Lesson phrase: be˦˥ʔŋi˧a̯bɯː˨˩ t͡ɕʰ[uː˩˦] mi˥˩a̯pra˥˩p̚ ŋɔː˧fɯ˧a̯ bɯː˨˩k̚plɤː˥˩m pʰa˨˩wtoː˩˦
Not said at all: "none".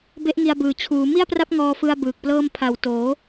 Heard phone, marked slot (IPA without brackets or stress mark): uː˩˦